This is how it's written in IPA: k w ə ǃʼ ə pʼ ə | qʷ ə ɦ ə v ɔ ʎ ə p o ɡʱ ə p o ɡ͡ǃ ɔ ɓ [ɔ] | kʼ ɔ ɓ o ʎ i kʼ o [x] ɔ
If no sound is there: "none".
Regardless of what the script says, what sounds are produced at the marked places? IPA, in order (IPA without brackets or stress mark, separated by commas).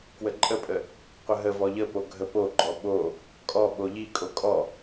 o, kʼ